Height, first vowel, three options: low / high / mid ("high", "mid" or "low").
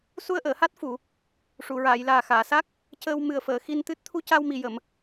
high